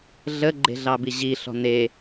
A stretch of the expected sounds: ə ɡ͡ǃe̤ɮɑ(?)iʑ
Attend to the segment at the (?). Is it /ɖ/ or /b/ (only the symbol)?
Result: b